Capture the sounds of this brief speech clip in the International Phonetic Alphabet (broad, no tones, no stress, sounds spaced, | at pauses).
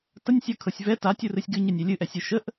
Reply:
t ə nʲ sʲ ɤ kʰ ɤ sʲ v ɛ t a tʲ u r ɨ sʲ ɡ ɨ ɲ ə nʲ ɛ lʲ ɨ ʔ ɛ sʲ ɨ ʃ ə ʔ